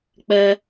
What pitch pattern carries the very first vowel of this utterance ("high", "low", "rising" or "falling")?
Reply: high